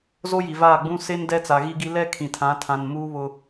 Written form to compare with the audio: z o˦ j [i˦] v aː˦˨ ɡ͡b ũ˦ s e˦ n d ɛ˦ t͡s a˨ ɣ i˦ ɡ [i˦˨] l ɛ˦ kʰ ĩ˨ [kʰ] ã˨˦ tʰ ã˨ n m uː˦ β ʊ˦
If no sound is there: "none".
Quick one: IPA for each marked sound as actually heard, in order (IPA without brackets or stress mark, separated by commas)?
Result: i˨, i˦, tʰ